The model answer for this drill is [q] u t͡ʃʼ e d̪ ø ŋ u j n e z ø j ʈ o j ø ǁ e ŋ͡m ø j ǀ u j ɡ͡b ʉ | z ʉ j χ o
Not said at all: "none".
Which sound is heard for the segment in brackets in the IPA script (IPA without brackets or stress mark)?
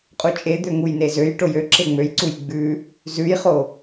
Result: qʼ